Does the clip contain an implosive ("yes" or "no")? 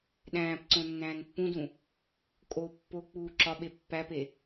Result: yes